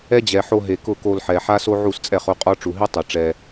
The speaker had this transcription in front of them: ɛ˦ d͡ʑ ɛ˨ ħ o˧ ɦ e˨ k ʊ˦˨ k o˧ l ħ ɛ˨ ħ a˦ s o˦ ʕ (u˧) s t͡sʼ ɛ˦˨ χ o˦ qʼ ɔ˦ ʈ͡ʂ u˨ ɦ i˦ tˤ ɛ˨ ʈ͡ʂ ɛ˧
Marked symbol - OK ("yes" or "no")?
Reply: no